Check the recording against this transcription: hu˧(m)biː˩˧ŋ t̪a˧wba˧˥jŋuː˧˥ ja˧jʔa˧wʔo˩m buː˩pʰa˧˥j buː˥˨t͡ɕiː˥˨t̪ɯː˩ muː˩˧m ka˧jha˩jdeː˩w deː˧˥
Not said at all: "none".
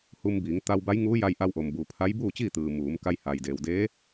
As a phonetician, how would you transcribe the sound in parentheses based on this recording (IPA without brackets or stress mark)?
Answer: m